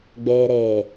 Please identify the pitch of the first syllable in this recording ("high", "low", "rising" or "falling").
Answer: low